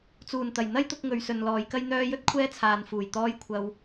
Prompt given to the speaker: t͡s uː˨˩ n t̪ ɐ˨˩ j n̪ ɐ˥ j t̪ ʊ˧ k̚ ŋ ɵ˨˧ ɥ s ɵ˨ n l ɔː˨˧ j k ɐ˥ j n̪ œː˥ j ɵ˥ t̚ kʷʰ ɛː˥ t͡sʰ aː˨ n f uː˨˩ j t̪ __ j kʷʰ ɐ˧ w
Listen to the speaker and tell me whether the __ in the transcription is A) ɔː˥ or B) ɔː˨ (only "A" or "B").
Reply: A